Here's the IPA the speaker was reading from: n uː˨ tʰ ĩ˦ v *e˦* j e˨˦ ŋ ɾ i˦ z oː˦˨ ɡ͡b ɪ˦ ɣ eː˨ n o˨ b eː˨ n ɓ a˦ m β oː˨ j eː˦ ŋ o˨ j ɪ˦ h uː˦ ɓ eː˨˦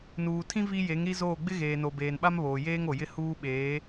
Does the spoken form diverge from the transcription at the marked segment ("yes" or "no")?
yes